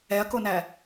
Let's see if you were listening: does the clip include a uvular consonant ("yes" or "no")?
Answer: no